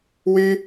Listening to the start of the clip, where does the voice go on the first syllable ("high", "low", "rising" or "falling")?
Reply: high